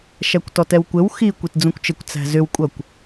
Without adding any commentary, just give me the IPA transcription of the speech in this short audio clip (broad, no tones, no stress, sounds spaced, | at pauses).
ʃ æ kʷ t ɔ t ɛ w kʷ ɘ w x i kʷ i t d͡z ũ kʷ t͡ʃ ɘ kʷ t͡s æ̤ z ʏ w kʷʼ ʌ kʷ